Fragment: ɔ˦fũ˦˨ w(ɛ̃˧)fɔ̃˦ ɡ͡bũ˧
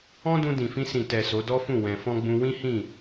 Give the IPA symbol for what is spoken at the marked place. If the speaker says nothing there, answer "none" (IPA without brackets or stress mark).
ɛ̃˧